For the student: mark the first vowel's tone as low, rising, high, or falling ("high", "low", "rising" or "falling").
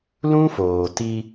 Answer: high